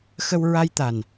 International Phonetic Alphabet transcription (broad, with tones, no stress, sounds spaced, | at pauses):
x ə˧ w ɹ a˧ j t̪ a˨˩ n